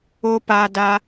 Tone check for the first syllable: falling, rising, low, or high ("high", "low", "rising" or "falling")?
high